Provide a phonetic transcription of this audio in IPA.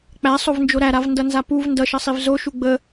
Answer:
k͡p æ sˤ o v n d͡ʒ o ɾ æ ɾ a v n d ʌ n z a p u v n d ʌ ʃ ʌ sˤ i v z o ʃ u ɡ͡b ə

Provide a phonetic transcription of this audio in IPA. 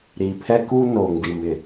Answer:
ɾ iː˨ pʰ ɛ˦ k u˦ n oː˨ ŋ d i˨ m ɪ˨

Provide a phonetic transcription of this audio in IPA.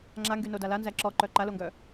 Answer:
ŋ͡ǁ a ŋ ɡ y n o d a l a n z æ ǁ ɔ ǃ œ ǃ a l o ŋ ɡ œ

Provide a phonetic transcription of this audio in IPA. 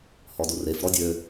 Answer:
h ɔ d u r e f ɾ ɔ dʲ ø

